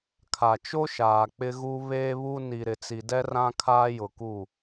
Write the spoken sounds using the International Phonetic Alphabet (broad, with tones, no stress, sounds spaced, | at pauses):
kʰ a˨ t͡ʃ o˦ ʃ aː˨ k͡p ɪ˦ ɣ u˦ β eː˦ β u˦ n i˨ ɾ ɪ˨ t͡s i˨ d ɛ˦ r ã˦ kʰ aː˦ j ʊ˨ k u˦˨